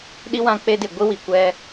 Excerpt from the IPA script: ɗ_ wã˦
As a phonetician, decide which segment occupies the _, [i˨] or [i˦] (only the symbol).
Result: i˦